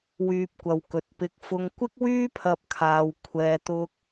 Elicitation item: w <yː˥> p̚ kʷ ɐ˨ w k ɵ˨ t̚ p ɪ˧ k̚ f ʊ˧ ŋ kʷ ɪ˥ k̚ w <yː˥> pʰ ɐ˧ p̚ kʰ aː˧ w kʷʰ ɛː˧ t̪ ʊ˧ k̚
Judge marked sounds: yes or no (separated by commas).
no, yes